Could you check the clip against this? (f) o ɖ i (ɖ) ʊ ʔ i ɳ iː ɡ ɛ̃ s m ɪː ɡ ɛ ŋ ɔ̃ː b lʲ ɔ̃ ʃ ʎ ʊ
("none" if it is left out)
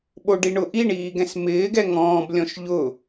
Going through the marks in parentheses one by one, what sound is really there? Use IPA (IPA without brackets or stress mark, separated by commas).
ɓ, ɳ